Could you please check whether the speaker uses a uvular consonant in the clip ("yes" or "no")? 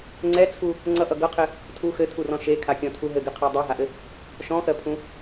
yes